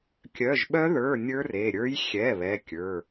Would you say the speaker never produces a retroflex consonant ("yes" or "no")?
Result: yes